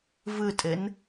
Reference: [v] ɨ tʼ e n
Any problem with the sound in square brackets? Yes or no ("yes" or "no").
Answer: no